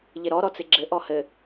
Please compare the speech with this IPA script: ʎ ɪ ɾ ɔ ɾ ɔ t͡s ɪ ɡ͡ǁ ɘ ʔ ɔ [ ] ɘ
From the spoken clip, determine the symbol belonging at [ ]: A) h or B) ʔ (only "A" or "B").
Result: A